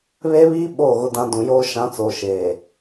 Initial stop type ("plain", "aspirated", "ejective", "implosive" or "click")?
implosive